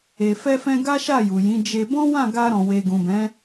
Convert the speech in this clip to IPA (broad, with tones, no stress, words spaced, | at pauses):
e˨fɛ˧fɛ̃˧ ɡa˦ʃa˦˨ju˨jĩ˨˦ d͡ʒe˧ bɔ̃˦wã˦˨ɡa˧ɾɔ̃˨ we˨ɡũ˨bɛ̃˨˦